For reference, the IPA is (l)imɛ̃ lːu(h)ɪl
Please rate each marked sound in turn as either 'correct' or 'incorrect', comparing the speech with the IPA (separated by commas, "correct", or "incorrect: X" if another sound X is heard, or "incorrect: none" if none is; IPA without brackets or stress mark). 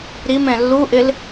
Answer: incorrect: ɾ, incorrect: ʔ